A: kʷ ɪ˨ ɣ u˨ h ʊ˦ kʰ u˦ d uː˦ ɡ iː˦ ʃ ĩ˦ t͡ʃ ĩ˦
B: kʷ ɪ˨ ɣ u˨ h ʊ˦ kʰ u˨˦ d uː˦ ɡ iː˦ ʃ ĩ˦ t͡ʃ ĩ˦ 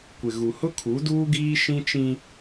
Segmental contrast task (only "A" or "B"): B